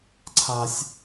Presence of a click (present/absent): present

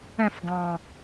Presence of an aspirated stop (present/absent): absent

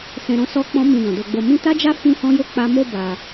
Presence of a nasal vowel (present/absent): present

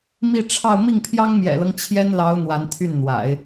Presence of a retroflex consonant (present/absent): present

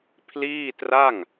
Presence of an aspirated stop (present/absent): present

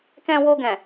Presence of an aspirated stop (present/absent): absent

